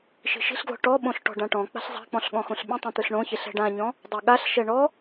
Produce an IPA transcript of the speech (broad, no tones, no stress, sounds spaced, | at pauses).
ʃ i̤ ʃ i̤ ɬ ɡ l ɔ̤ ʈ ɔ ɓ õ ɬ ʈ ɔ̤ ɖ ã ʈ ɔ̃ k͡p a̤ ɬ zˤ a̤ k͡p ɔ̃ ɬ ɠ ɔ̃ x õ ɬ ɓ ẽ tˤ ẽ t̪ ɯ ɬ ɳ õ ç e ɬ ɛ̤ ɖ ã ɲ ɔ̃ | dˤ o ɠ a ɬ ʃ ɛ ɳ ɔ